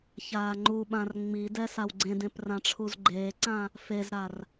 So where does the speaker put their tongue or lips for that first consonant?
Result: palate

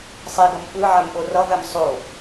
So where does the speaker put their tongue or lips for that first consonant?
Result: tongue tip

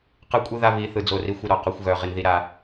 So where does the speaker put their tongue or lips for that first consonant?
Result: uvula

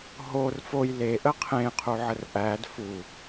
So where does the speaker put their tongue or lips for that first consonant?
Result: throat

